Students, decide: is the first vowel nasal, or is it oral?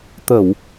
oral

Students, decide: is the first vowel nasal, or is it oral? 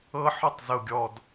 oral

